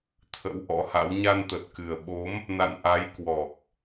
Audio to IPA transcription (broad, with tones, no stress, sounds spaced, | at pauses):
t̪ʰ ə̰˧˥ w ʔ ɔ̰˧˥ h a̰˧˥ w ɲ a˧ n t̪ ə˨˩ t̚ k ɨ˨˩ ə̯ ɓ o˨˦ m | n a̰˧˨ n ʔ a˨˦ j k w ɔ˨˩ k̚